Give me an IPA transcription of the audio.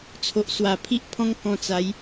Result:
t͡sʰ o˨ ʔ s w a˨˩ pʰ i˦ ʔ pʰ ɔ̃˦ ŋ k ɔ̃˧ t͡s a˨˦ j

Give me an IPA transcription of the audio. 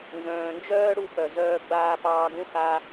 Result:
n z œ̃ː˨ n d͡ʒ œː˦ ɽ u˧ p œ˨ z œː˧ ɡ͡b aː˧ p ɑː˧ ɡ ũ˦ x a˦

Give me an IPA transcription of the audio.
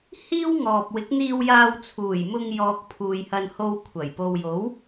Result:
h iː˥ w ŋ ɔː˨ p̚ w ɪ˨˥ k̚ n̪ iː˧ w j aː˧ w t͡sʰ uː˨˩ j m ʊ˧ ŋ j ɔː˨ k̚ pʰ uː˨ j h ɐ˧ n h o˧ w kʷʰ ɐ˨˩ j p o˨ w j o˨˥ w

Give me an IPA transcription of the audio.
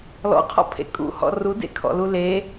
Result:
l ɔ̰ qʰ ɔ̰ pʰ ḛ kʼ ṵ h ɔ̰ r u d ḛ kʰ ɔ̰ l u l e

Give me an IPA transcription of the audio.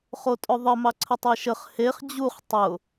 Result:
χ o tʼ ʊ ðˤ ə m ɑ ǀʰ ə tˤ e ʃ ə χ h e χ d͡ʑ u χ tˤ ʊ

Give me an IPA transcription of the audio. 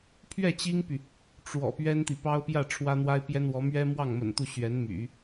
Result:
pʰ ɥ ɛ˥˩ t͡ɕ i˥ ŋ p y˨ | ʈ͡ʂ w ɔ̰˨˩ p ɥ ɛ˥ n t̪ i˨ p ɑ˥ ʊ̯ p j ä˥˩ ʈ͡ʂʰ w ä˥ n̪ w a˥ ɪ̯ p j ɛ˥ n w ɔ˧˥ m ɥ ɛ˥ m w ɑ˥˩ ŋ m ə̰˨˩ n t̪ u˥˩ ɕ ɥ ɛ˧˥ n m y̰˨˩˦

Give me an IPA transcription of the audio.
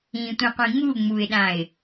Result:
ĩ tʷ ĩ qʷ ĩ ŋ u ŋ͡m u ɪ̯ ɗ ã ɪ̯

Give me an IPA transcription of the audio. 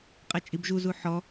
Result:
qʼ ɛ t͡ʃʼ i b ʒ u z u ħ ɔ

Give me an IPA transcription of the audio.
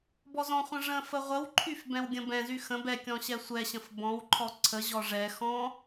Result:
b ɔ z ɔ̃ χʷ ə̃ ʐ ə̃ f ə ʁʷ ə w ǃʰ y f b ɛ̃ w ɡʲ ə̃ b ɛ̃ z y x ə̃ b ɛ kʲ ɔ̃ ɕ ɛ sʷ ɛ ɕ ə̃ f b ɔ̃ w ǃʰ ɔ ǀʰ ə ʑ ɔ ʐ ɛ x ɔ̃

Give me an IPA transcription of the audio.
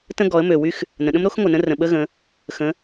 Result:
t ə̃˦ ɡ ɔ˩˧ ə̯ m ø˩ w y˦ x | n ə̃˩ ɗ ə̃˦ m ɾ o˦ x ŋʷ ə˩ n ə̃˦ r ə̃˩ ɓ ə˦ ɣ ə̃˩˧ | x ə̃˩˧

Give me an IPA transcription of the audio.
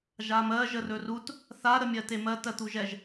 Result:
ʒ a m ɜ ʒ ə r ɵ r u t | θ a ɾ ə mʲ ɜ t e m ɜ t ɜ t̪ u ʒ ɛ ʒ

